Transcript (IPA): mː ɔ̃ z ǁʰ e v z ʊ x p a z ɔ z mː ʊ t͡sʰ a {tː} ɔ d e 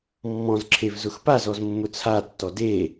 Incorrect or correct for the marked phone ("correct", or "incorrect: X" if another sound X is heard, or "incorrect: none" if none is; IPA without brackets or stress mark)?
correct